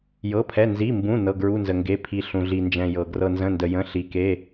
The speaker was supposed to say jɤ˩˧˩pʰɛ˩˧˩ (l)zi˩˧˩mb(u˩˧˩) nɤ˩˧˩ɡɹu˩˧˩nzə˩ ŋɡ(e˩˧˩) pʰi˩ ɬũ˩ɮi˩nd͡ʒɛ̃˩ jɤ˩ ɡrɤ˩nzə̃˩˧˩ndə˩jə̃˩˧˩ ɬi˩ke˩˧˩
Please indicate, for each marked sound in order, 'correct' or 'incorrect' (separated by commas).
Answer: incorrect, incorrect, correct